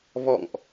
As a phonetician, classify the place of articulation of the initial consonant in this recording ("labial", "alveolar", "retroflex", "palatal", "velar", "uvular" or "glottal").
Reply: labial